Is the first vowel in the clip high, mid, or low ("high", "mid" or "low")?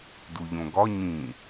high